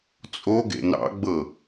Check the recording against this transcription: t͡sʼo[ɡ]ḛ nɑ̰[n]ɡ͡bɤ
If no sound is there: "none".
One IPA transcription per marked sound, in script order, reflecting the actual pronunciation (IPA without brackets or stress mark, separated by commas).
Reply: ɡ, none